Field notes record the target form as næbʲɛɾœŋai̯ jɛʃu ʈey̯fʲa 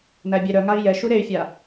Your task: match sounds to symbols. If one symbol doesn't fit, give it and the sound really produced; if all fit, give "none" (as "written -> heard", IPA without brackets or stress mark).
ʈ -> ɾ